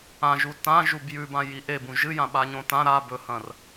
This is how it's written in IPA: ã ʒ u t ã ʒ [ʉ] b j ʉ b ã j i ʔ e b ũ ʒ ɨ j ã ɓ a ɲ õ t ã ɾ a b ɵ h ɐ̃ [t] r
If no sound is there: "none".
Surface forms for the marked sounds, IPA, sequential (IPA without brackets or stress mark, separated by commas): u, none